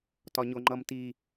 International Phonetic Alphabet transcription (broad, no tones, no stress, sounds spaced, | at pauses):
t ɒ ɲ o ŋ͡ǃ ʌ m t i